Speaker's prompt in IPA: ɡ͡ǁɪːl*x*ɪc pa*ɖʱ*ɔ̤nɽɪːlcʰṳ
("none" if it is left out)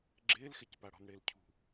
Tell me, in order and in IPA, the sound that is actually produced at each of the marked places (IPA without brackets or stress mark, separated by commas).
x, ɽ